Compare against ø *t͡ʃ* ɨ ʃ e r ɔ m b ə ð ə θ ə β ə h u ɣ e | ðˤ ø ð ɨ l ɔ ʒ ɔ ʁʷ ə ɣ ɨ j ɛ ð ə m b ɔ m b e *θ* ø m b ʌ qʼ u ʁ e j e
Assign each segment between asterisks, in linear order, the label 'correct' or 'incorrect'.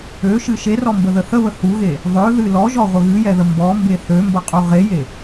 incorrect: ʃ, correct

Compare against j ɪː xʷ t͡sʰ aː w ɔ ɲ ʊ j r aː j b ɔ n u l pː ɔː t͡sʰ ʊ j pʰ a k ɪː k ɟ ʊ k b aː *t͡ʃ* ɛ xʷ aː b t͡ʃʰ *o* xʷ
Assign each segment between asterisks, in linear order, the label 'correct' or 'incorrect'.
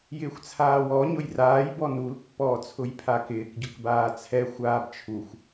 incorrect: t͡sʰ, incorrect: u

